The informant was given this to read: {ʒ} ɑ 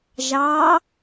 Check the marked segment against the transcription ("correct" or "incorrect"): correct